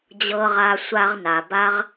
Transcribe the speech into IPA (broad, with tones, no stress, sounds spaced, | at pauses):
d͡ʑ ɤ˧ ʁ a˧ sʷ a˧ ʁ n a˩ b a˧ ʁ